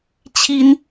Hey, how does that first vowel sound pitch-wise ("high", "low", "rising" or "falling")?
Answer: high